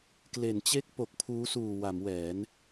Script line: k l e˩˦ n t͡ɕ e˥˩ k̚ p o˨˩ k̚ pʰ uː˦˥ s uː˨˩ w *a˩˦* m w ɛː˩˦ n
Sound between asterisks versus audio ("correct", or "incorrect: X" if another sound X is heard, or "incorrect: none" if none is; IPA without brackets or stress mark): correct